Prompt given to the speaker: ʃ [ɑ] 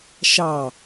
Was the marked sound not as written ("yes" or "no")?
no